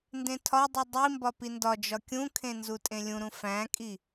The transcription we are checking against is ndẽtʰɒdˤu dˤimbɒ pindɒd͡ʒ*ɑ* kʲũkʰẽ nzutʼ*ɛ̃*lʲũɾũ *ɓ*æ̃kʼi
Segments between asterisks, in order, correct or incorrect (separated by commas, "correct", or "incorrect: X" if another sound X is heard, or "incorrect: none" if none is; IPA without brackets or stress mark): incorrect: ɒ, incorrect: ẽ, incorrect: f